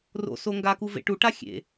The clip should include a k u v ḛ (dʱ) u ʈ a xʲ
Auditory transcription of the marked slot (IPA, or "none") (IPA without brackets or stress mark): ʈ